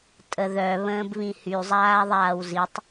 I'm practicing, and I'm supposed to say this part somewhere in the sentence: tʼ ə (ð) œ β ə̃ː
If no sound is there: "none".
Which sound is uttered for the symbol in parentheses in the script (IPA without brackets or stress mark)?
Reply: ð